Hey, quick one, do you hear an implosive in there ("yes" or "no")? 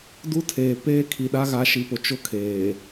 yes